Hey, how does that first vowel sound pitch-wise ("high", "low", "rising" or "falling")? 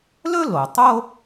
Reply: high